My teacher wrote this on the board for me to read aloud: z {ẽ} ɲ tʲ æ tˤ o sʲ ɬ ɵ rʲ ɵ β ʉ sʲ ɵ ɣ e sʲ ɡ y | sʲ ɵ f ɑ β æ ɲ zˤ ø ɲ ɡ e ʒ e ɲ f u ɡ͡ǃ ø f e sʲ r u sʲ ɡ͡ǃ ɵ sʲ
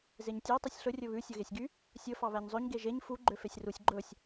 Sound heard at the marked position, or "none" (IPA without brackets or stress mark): e